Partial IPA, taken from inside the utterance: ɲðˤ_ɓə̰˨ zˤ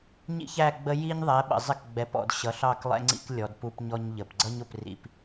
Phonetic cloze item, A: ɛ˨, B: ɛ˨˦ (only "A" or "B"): B